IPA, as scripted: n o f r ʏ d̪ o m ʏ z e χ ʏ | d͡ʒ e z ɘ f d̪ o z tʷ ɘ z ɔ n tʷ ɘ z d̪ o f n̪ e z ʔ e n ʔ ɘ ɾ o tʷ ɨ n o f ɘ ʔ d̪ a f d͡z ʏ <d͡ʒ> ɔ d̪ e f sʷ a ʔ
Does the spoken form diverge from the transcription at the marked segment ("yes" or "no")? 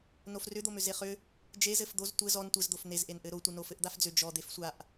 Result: no